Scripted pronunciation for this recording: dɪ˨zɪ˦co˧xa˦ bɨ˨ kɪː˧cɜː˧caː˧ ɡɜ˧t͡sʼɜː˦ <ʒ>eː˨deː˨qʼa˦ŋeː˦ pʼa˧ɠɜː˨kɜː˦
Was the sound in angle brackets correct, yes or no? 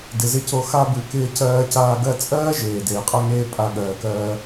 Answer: yes